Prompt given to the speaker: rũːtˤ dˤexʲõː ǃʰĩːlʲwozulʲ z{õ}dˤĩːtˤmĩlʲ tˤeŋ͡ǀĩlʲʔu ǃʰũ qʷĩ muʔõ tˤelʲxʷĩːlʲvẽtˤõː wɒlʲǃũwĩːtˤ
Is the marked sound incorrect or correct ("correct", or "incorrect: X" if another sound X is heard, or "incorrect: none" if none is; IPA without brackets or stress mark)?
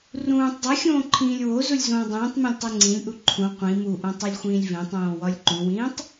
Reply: incorrect: õː